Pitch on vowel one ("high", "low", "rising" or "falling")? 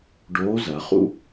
rising